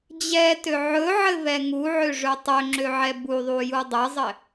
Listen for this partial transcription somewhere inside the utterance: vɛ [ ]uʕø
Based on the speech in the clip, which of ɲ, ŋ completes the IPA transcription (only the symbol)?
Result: ŋ